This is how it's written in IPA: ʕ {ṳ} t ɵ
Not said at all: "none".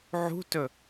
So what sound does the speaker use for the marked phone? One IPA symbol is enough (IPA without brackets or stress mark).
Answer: ṳ